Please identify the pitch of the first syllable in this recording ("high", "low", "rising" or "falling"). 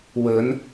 rising